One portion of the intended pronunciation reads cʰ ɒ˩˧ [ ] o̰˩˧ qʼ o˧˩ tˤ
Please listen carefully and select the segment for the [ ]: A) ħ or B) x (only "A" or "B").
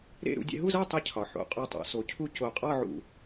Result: A